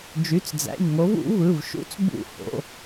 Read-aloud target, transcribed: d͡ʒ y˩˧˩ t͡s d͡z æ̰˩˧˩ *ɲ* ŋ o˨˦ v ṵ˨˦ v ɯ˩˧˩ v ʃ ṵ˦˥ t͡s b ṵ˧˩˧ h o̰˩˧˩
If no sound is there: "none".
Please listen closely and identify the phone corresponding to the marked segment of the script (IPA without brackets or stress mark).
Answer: ɲ